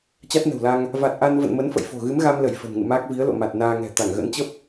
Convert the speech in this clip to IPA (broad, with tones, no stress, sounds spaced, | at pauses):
t͡ɕ a˦˥ t̚ n ə̤˨˩ w l a˧ ŋ | v a˨˩ t̚ ʔ a˧ n v ə̰˧˨ n m ə˨˦ n f ə̰˧˨ j f o̤˨˩ ɣ ɨ˨˦ m ɣ a˧ m l ə˧˩ j f ə̤˨˩ n ŋ ɨ̰˧˨ m aː˦˥ k̚ v i˨˦ ə̯ l o̰˧˨ m a˨˩ t̚ n aː˧ ŋ ɛ̤˨˩ t̪ a˧˩ ŋ ɣ ə̰˧˥ n t͡ɕ ə˦˥ p̚